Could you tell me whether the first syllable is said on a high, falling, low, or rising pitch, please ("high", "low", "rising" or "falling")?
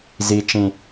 high